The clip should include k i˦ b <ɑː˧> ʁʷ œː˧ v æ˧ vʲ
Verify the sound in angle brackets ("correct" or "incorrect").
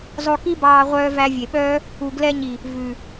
correct